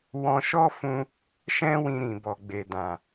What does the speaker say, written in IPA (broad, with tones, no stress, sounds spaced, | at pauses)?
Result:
w ɔ̃˧ ʃ ɔ˦ f ũ˧ | ʃ ɛ̃˦ w ĩ˧ ɾ ĩ˨ b ɔ˨ ɡ͡b e˨ d ã˨